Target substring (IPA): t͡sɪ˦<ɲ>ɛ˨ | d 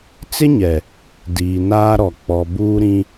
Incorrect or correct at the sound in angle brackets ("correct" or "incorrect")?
correct